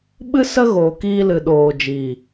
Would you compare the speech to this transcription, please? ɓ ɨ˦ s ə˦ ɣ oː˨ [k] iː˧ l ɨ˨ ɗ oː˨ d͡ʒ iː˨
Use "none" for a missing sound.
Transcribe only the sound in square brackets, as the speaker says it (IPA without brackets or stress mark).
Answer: k